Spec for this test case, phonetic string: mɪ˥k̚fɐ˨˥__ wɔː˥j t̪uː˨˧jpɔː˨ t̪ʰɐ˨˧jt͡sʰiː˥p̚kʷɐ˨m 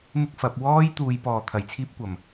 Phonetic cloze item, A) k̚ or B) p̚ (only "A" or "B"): B